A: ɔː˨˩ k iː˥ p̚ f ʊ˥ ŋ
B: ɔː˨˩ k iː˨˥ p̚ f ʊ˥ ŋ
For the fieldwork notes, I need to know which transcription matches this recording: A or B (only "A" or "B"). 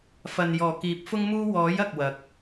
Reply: B